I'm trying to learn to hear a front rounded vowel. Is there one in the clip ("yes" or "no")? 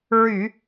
yes